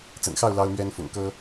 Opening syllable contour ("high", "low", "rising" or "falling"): low